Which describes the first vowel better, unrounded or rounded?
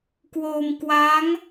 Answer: rounded